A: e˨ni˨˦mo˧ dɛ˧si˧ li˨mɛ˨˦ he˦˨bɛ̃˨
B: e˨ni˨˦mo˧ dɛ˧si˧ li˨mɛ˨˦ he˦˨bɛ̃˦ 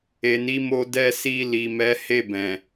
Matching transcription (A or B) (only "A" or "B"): A